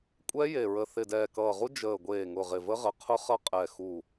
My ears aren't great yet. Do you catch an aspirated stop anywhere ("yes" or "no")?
yes